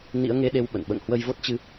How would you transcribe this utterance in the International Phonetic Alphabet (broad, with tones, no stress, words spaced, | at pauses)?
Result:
nḭ˧˥ə̯ŋe˧ɗe˧w ɓə̰˧˨n ɓə̰ː˧˨ŋhwə˧jvo˦˥t̚t͡ɕɨ˧